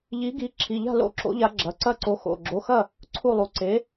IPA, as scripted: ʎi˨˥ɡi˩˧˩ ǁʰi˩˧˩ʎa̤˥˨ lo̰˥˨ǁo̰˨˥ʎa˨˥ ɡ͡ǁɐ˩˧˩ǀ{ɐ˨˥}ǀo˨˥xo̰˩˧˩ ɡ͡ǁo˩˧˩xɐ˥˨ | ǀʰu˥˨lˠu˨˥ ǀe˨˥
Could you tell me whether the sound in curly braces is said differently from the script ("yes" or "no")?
yes